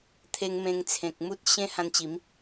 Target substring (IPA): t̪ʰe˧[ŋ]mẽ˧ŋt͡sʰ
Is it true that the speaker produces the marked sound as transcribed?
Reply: yes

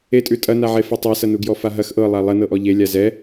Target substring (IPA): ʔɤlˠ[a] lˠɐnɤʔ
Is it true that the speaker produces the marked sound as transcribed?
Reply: yes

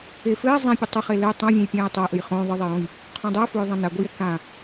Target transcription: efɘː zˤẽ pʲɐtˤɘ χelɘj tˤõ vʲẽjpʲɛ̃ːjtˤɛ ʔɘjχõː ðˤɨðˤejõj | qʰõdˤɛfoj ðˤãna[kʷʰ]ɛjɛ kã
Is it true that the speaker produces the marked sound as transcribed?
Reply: no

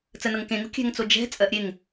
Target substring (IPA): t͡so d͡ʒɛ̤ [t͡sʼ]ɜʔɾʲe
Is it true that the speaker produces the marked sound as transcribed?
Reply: yes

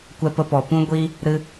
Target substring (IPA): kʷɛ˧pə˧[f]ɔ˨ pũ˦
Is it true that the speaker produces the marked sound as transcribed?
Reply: no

